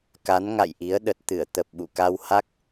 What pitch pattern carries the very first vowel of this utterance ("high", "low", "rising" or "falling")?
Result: rising